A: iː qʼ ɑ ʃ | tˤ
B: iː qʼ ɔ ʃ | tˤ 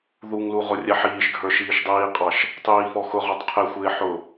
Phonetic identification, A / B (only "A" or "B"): A